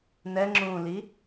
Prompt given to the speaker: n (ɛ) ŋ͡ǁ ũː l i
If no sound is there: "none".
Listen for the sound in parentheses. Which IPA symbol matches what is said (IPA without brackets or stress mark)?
ɛ